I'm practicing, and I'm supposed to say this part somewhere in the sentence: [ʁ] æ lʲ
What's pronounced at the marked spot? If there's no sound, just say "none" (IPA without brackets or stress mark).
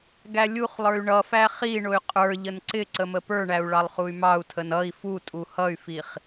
ɡ